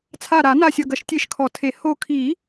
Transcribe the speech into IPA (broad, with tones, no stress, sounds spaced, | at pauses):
t͡sʰ a˧˩ ɾ a˨˩˦ n a˧˩ sʲ ɐ˧˩ ɡ ɐ˨˩˦ ʃ tʲ e˧˩ ʃ kʰ ɔ˨˩˦ tʰ e˨˩˦ h o˧˩ kʰ i˨˩˦